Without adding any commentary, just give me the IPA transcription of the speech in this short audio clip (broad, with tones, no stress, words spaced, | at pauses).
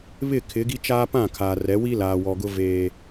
βɪ˦˨kʰɪ˨˦ɡi˦ t͡ʃaː˦pã˦˨kʰa˨rɛ˨˦ wi˦laː˨wɔ˨ɡʊ˦ veː˦